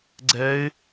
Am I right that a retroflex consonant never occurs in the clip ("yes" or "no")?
yes